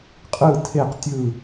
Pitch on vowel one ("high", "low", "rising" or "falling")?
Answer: falling